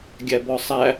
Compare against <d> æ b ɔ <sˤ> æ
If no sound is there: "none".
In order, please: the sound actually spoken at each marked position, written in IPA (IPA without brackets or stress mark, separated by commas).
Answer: ɡʲ, sˤ